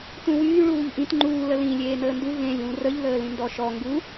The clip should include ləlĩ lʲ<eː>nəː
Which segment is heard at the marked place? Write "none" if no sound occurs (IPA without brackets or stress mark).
eː